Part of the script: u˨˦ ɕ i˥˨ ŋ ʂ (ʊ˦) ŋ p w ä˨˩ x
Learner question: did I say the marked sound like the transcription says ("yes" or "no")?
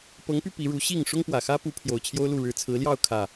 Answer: yes